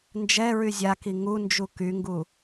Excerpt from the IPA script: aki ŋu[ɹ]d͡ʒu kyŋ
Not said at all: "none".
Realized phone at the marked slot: n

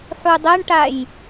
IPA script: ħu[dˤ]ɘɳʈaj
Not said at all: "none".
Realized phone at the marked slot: dˤ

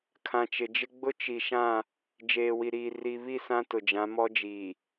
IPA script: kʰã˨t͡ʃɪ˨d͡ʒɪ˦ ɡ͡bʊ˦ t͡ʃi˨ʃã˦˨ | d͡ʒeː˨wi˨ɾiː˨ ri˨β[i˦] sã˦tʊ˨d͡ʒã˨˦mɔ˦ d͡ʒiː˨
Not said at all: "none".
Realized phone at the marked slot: i˦˨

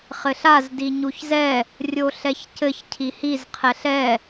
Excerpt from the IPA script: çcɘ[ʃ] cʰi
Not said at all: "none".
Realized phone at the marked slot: ç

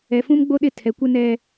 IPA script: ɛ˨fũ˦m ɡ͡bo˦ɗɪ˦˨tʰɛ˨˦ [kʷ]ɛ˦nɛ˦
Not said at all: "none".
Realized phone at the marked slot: kʷ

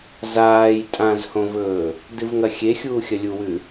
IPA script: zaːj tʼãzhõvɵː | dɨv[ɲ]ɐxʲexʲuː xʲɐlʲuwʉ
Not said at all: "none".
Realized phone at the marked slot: ŋ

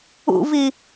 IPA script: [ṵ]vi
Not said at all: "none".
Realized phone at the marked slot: ṵ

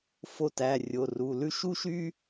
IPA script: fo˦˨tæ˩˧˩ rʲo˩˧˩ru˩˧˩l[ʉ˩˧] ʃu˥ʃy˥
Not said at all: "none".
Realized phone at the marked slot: ʉ˥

